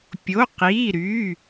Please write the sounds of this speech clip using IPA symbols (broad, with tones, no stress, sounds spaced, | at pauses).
pʲ o˩˧˩ q iː˩˧˩ ɾ yː˩˧˩